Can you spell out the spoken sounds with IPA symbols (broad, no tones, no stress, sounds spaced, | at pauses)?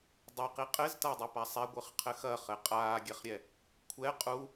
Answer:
dˤ ɨ q i qʼ ɘ z t a dˤ ɘ p a sˤ ɛ ɡʷ ɨ χ qʰ ɘ x ɐ χ ɘ qʼ aː ɡʲ ɛ χ ɾʲ ɛ | kʷʰ ɛ qʼ u